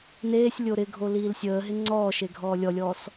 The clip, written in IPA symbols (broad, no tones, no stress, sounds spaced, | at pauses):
n eː sʲ lʲ o ɾ ɪ ɡʱ o l iː l sʲ əː ɦ ɪ ŋ͡ǀ ɔː ʃ e ɡʱ ɔː lʲ ɔ lʲ ɔː s